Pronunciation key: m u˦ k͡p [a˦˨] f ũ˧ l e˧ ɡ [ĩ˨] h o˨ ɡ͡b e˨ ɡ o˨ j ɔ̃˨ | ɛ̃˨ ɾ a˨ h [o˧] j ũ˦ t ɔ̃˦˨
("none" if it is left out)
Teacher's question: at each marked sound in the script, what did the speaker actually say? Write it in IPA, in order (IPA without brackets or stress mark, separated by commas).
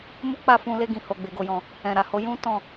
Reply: a˦˨, ĩ˨, o˨˦